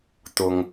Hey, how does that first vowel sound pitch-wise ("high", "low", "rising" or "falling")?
high